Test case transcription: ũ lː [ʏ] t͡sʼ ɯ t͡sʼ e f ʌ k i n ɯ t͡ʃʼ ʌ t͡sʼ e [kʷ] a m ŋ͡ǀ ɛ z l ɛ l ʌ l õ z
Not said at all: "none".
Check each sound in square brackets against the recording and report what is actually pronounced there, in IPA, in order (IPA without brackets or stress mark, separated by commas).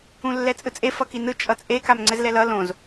ɛ, k